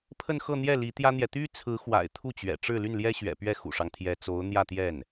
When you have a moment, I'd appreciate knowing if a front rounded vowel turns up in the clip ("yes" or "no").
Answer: yes